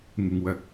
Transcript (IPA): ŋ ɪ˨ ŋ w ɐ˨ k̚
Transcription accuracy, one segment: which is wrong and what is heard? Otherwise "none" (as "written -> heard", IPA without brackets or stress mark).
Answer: none